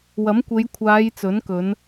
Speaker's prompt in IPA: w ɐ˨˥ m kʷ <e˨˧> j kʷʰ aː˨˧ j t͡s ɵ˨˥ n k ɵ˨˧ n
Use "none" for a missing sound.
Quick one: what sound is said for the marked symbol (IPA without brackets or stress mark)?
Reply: e˨˧